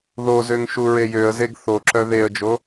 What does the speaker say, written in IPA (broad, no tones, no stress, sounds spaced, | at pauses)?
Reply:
ð o z ø ŋ ʃ u ɹ e j ø ə̯ z e ɡ θ o ǁ œ ð e ə̯ d͡ʒ o